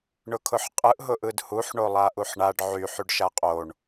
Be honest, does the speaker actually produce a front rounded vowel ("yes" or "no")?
yes